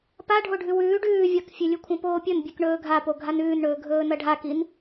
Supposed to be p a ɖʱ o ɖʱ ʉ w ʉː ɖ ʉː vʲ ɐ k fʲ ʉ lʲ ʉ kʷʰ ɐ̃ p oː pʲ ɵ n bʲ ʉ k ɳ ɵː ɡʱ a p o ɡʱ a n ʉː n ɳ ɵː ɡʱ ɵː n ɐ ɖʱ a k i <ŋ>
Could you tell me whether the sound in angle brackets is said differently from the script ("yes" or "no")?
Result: yes